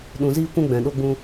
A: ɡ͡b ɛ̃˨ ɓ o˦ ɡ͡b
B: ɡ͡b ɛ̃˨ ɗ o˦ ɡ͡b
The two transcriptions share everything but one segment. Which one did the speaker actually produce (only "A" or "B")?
B